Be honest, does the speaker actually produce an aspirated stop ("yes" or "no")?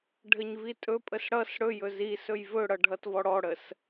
no